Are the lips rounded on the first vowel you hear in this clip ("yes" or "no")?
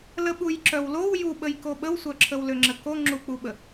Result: no